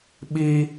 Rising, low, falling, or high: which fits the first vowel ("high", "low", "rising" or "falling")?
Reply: high